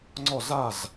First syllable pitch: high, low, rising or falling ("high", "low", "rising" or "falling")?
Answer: falling